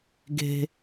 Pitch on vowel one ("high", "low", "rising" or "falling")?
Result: low